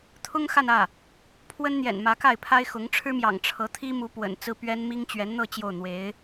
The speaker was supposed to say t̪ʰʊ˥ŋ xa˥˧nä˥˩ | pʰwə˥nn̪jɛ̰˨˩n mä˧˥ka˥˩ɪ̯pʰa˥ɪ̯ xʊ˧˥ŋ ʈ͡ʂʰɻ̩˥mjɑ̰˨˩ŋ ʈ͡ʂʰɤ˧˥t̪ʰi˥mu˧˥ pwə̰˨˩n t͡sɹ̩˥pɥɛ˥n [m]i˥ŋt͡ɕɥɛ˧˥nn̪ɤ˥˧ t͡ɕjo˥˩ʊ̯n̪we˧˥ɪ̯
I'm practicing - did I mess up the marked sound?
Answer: no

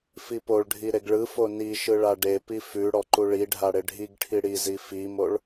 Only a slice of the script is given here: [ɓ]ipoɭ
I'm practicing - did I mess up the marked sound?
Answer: yes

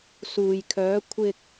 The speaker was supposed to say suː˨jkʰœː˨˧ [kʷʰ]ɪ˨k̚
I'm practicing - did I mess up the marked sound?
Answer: no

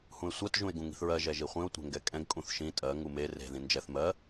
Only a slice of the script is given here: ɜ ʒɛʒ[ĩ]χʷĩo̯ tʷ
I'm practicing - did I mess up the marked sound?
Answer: yes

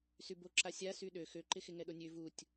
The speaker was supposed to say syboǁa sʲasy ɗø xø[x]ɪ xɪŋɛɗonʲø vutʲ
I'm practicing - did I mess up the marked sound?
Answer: yes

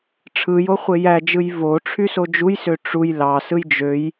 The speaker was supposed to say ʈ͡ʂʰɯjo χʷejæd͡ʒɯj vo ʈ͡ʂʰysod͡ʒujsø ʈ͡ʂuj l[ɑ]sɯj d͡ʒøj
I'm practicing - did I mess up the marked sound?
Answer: no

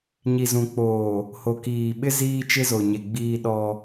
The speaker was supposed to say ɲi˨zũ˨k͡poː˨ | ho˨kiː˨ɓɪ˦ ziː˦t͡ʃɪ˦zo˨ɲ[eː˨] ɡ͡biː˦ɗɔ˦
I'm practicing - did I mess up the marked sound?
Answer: yes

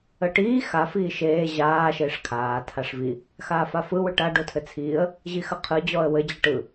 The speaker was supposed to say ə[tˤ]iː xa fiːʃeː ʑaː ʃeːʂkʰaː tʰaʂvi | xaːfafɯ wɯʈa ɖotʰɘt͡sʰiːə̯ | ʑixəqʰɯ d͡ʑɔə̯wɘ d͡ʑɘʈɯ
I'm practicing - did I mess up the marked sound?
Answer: yes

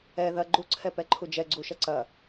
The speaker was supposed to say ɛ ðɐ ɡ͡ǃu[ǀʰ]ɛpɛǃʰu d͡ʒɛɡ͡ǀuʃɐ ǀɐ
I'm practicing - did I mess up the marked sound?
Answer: no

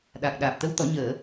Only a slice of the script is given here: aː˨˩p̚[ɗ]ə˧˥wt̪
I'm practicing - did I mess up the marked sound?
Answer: yes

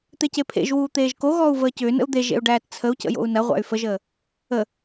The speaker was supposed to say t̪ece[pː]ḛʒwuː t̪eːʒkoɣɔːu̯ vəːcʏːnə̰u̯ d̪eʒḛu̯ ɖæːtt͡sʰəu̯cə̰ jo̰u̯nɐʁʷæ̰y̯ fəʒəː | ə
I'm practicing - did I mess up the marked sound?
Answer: yes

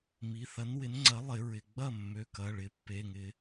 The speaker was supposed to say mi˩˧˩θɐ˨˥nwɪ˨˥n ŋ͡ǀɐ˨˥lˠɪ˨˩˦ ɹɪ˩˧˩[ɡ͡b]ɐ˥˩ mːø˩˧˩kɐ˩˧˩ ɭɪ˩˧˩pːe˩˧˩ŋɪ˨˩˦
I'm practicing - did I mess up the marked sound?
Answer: no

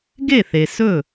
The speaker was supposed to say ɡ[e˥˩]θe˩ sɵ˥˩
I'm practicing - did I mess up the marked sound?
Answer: no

